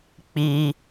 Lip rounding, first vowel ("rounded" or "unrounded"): unrounded